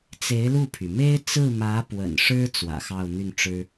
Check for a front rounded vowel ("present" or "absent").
present